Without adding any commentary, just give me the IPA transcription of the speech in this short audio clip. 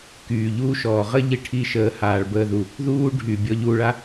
k yː˨ ʎ uː˧ ʃ ɔː˨ ʁ ə˦ ʎ i˧ ʈʰ i˧ ʃ əː˨ h aː˨ ɭ b əː˧ ð u˨ | ð uː˧ ɖʱ y˨ bʲ ɔ˧ ʎ u˧ ɭ a˦

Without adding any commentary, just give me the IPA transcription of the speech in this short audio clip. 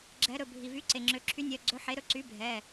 ɡ͡ǁ ɛ˩˧ ɾ ɵ˩ bʱ i˩ v y˩˥ ǀ e˩ ŋ͡ǁ ø˩˧ ǁʰ y˩˥ nʲ œ˩˧˩ ɡ͡ǀ ɵ˩˥ ħ e˩˥ ɾ ɵ˩˥ ǀ y˩˥ bʱ ɛ˩˧˩

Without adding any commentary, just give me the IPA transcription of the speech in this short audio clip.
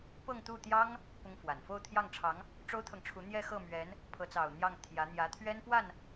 p ɤ˥˧ ŋ t̪ u˥˩ t̪ j ɑ˥ ŋ | p ʊ˥ ŋ f w a˨˩ n f o˥˧ ʊ̯ t̪ʰ j ɑ˥˩ ŋ ʈ͡ʂʰ ɑ˧˥ ŋ | ʈ͡ʂ o˥ ʊ̯ t̪ʰ ɤ˨ ŋ ʈ͡ʂʰ u˧˥ n̪ j ɛ˥˧ x ɤ˥˩ m ɥ ɛ˧˥ n | pʰ ɤ˧˥ t͡s ɑ˨˩ ʊ̯ n̪ j ɑ˥˩ ŋ t̪ʰ j ä˧˥ n̪ j ä˧˥ t̪ʰ ɥ ɛ˥ n p w a˥˩ n

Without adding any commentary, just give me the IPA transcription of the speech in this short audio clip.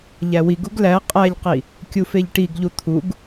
ʎ æ w i ɡ u ɡ l æ qʼ æ ʎ q i | kʲ u f e ʎ ʈ i ɡ ʎ u t̪ʰ u ɡ

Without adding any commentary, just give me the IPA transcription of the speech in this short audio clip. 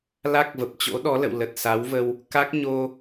l a˦˥ k̚ v ə˨˩ p̚ t͡ɕ o̰˧˥ ɗ ɔ˨˦ l ə̰˧˨ w l ə˨˩ t̚ s a˨˦ w v ə˧ w | k a˦˥ k̚ ɲ o˧

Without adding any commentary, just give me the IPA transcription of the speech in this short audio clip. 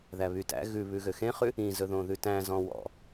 ð æ β y t æ̰ ɣ ʉ β ʉ ɣ ø x ẽ χ ʉ | ĩ z ɵ ð õ ð ʉ t æ̃ z ɔ̃ w ɔ̰

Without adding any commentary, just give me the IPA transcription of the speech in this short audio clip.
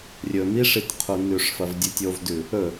rʲ ɵ m i ʂ i t qʰ u n ʉ ʂ f ɐ v dʲ ɨ tʲ o v d ʉ | ɵ

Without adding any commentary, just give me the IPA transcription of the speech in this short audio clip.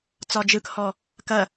t͡s ɒ d͡ʒ ɯ k h ɔ | k ɐ

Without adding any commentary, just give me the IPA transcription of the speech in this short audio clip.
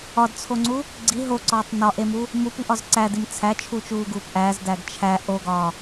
ɒ d t͡sʰ o ŋ͡ǀ u | ɡ͡ǀ i ɦ o ǀ ɒː tˤ n ɒ ʔ e m u | m u p i ʔ ɒ z ǀ æ d i m t͡sʰ æ t͡ʃʰ u t͡ʃ uː ɡ uː p ʔ æ z d æ ɡ t͡ʃʰ æ ʔ o ɡ ɒː

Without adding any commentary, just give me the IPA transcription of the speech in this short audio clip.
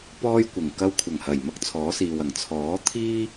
p ɔː˥ j kʷ ɪ˨˩ ŋ k ɐ˧ w kʷʰ ɐ˨˩ ŋ h ɐ˨˩ j m ɐ˥ k̚ t͡sʰ ɔː˨˥ s iː˨ w ɐ˨˩ ŋ t͡sʰ ɔː˨˥ t̪ʰ iː˥

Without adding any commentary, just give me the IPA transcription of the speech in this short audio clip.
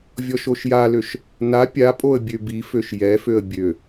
vʲ ɔ ʃ o ʃ j a l ø ʃ | n a pʲ a pʼ o ə̯ bʲ ø b i f ø ʃ j ɛ f ø ə̯ bʲ ø

